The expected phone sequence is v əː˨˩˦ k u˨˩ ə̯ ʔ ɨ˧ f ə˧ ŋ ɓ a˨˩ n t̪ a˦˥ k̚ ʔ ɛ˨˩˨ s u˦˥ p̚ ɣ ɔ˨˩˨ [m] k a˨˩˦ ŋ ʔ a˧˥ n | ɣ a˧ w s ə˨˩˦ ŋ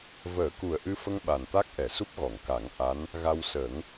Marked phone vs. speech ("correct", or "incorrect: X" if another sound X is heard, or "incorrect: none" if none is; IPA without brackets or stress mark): incorrect: ŋ